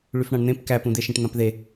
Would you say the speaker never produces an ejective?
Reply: yes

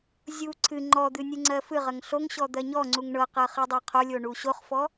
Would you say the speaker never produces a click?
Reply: no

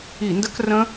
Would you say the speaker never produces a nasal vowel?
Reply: no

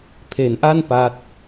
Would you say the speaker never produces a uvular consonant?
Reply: yes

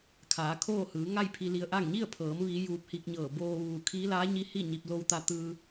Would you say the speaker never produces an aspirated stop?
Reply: no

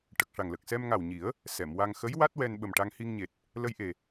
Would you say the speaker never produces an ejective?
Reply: yes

